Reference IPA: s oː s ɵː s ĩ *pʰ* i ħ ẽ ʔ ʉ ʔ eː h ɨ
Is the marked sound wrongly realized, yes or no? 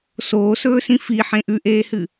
yes